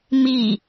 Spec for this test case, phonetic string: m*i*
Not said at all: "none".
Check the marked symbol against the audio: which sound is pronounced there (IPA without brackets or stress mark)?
i